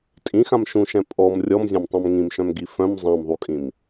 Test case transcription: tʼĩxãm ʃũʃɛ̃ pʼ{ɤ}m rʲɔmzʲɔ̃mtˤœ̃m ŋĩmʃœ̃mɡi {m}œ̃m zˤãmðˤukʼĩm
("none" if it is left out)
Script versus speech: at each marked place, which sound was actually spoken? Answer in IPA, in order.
ɔ, f

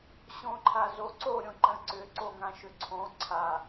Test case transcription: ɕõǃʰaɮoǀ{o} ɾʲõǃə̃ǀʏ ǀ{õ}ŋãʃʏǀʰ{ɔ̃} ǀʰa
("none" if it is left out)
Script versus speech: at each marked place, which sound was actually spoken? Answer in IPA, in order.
o, o, õ

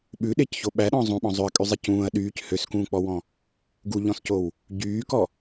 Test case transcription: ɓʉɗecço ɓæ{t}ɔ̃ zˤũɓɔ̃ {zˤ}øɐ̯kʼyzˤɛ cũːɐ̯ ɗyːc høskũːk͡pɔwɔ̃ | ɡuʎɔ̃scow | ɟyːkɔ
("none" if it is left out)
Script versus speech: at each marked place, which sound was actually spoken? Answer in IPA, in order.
ɗ, zˤ

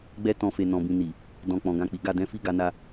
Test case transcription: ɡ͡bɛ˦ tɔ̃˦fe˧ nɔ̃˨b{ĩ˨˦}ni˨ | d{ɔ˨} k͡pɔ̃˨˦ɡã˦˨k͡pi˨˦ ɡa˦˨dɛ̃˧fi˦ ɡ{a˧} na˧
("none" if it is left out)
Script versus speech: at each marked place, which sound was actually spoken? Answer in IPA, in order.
ĩ˨, ɔ̃˨, a˧

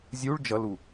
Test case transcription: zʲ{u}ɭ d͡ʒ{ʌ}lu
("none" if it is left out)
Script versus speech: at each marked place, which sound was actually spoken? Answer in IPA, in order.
u, ʌ

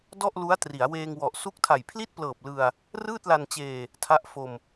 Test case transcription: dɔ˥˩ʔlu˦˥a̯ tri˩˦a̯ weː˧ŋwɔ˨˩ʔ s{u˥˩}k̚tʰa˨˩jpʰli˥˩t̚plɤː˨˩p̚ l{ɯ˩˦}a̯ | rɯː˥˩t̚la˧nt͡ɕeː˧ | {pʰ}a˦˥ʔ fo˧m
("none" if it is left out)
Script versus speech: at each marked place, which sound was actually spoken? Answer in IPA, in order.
u˦˥, ɯ˧, tʰ

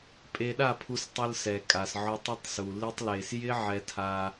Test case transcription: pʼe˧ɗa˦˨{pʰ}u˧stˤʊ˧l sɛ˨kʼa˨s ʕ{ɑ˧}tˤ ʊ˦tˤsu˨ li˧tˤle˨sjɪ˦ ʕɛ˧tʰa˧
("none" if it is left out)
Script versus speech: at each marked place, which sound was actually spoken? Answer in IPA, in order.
pʰ, ɔ˧

